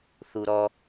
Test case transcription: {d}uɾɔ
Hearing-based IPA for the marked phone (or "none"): θ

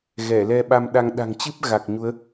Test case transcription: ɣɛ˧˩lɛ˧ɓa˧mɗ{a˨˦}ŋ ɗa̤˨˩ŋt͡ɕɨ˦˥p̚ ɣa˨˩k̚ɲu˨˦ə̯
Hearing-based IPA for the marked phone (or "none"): a˧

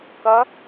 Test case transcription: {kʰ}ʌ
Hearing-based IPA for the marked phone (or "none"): k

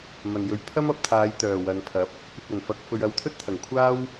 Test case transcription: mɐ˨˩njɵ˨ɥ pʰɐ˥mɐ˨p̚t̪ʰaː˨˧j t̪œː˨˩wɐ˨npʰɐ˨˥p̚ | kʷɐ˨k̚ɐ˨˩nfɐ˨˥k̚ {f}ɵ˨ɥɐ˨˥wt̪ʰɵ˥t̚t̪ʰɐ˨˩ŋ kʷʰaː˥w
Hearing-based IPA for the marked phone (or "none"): f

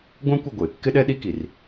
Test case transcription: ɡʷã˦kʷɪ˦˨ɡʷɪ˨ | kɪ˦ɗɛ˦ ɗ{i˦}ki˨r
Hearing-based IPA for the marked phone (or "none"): i˦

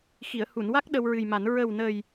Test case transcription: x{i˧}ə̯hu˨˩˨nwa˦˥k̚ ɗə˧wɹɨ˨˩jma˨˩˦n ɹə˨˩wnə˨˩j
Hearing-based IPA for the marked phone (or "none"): i˨˩˨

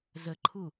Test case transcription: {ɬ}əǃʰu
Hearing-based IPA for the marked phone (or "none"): z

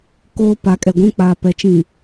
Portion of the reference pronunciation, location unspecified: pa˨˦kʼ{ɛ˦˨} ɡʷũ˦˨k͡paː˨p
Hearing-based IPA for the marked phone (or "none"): ɛ˨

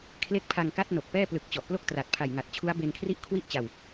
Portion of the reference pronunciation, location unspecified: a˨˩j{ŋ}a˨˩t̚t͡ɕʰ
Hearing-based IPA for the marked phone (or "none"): ŋ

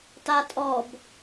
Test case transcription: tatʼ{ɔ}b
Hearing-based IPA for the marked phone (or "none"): ɔ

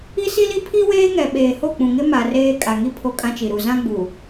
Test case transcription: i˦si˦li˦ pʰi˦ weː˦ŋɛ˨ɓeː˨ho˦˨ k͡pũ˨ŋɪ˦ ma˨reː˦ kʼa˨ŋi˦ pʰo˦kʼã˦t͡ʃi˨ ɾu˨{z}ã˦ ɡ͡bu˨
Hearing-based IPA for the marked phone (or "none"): z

